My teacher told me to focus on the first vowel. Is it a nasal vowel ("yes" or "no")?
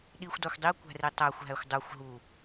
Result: no